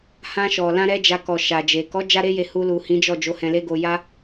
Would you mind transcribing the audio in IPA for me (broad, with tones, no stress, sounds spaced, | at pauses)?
h ã˧ ʃ ɔ˨ l ã˧ ɾ ɛ˧ d͡ʒ a˧ k ɔ˨ ʃ a˨ d͡ʒ e˨ k ɔ˨˦ d͡ʒ a˦ ɾ e˦ j e˧ h u˧ l u˨ h ĩ˨˦ d͡ʒ ɔ˦˨ d͡ʒ o˨˦ h ɛ̃˧ l e˦ ɡ o˧ j a˦